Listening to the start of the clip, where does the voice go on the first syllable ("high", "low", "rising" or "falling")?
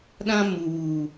high